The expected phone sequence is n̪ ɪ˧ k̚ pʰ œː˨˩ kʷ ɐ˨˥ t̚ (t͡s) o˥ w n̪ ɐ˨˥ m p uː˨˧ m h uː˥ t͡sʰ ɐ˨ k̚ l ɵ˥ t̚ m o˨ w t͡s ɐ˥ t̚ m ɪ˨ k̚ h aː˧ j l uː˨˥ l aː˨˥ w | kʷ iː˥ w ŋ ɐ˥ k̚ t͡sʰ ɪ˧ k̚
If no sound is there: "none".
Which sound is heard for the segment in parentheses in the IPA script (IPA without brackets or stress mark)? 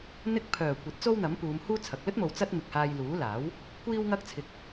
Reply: t͡s